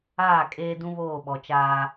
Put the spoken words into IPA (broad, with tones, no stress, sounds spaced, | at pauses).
aː˦˨ kʼ eː˦ d ũ˦ β oː˦˨ ɓ ɔ˨ t͡ʃ aː˦